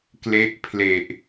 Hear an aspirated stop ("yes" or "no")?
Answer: yes